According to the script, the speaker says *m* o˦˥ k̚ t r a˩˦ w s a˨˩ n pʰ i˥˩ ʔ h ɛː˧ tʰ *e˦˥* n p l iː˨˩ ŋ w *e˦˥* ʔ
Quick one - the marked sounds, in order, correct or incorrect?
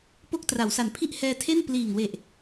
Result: incorrect, incorrect, incorrect

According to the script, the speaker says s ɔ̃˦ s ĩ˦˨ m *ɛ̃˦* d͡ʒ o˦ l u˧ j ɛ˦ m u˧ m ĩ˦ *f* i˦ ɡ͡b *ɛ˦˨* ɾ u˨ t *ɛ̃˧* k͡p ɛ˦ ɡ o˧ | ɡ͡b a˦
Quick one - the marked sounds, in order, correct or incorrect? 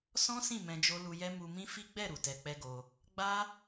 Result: incorrect, correct, correct, incorrect

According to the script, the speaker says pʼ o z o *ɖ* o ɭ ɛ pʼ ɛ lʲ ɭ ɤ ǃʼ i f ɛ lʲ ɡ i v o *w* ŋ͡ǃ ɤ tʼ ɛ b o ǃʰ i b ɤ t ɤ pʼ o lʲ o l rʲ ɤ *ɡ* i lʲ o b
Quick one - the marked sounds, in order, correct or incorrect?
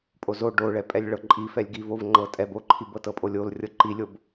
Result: correct, incorrect, incorrect

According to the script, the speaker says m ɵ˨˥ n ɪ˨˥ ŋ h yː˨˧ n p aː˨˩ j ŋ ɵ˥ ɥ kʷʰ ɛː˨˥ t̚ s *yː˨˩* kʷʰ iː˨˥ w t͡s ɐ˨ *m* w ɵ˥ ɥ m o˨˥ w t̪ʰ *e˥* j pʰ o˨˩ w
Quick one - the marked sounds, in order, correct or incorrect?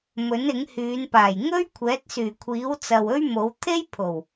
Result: correct, incorrect, correct

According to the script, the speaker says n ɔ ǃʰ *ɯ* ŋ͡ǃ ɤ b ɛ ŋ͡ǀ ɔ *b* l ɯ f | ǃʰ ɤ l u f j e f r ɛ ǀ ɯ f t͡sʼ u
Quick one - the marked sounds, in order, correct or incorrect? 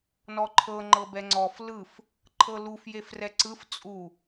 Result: incorrect, incorrect

